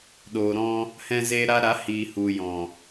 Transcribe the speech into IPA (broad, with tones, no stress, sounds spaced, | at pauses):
ɗ oː˨ ɾ ɔ̃˧ | h ɛ̃˧ z eː˧ ɾ a˧ ɾ a˨˦ h iː˨ h u˨ j ɔ̃˨